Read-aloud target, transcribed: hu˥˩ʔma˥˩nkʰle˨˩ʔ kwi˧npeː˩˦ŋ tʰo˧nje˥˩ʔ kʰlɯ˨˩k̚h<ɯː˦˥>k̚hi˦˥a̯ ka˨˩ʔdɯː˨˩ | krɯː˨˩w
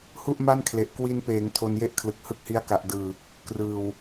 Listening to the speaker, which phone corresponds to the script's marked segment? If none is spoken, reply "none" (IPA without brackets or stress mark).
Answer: ɯ˦˥